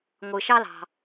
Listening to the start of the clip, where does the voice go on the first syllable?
low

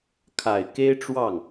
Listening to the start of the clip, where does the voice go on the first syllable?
low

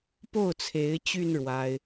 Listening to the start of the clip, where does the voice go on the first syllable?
falling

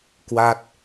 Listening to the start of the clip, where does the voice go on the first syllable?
falling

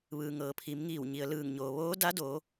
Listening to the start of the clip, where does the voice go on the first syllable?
low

